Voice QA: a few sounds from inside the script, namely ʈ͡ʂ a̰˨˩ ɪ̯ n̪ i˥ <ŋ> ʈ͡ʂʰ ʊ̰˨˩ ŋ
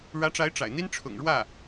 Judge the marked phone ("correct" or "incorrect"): incorrect